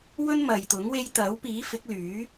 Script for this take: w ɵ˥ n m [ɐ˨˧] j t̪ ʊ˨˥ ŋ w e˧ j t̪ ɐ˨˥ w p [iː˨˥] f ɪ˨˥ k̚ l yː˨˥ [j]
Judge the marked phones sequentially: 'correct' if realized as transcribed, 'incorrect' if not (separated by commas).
incorrect, correct, incorrect